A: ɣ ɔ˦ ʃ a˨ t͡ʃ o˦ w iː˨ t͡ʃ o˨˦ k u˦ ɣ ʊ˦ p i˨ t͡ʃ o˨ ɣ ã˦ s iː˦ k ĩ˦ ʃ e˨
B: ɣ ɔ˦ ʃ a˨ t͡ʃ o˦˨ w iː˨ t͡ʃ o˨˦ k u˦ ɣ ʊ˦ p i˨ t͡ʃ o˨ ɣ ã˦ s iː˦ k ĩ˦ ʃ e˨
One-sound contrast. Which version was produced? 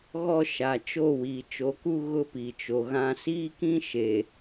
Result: B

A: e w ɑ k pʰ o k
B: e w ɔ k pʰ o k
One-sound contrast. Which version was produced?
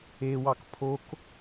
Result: A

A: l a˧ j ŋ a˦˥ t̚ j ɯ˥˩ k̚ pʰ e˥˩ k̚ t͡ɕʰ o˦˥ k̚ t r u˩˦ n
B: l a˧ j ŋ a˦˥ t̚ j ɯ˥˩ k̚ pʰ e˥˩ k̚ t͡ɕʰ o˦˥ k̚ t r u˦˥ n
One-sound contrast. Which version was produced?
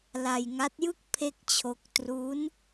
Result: B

